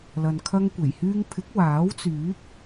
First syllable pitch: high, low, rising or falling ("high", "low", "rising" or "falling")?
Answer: low